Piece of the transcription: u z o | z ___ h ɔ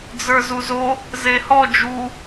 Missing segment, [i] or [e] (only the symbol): e